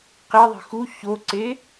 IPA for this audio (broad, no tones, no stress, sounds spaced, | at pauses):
q e ðˤ i̤ x u ç o ǀ e